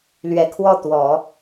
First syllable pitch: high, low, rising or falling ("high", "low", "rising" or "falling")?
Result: low